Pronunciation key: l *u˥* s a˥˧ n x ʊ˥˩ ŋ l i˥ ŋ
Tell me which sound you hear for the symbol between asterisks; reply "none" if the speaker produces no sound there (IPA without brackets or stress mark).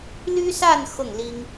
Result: y˥